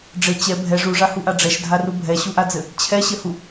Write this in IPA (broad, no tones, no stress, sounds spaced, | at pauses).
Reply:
ɖ͡ʐ ɘ t͡ɕ ɛ bʱ ɛ ʐ u ʐ a h u ʔ a ɖ͡ʐ ɛ ʃ dʱ a r u bʱ ɛ ɕ u ʔ a d͡z ɘ | t͡ɕʰ ɛ ɕ ɘ h u